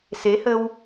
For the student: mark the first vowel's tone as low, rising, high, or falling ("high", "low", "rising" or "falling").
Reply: rising